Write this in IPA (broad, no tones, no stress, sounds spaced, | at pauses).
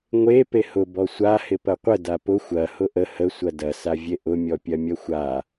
ŋʷ e p e h ʊ b ɔ sʷ a h ɪ p ɐ qʷ ə d a p ʊ xʷ ɐ h ʊ ʔ ə h ə sʷ ɐ d ɐ s a vʲ e ʔ ʊ mʲ ɔ pʲ ɐ mʲ ɐ xʷ a